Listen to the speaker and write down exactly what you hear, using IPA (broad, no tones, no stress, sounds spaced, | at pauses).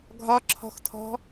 ɡʱ ɒ ǁʰ ɔ̤ x tʰ ɔ̤